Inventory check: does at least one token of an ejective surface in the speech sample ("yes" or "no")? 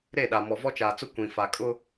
yes